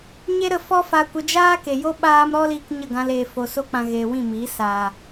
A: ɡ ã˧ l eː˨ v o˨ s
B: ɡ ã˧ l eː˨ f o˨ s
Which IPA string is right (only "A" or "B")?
B